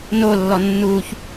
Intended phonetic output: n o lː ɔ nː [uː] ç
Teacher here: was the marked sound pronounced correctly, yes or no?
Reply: yes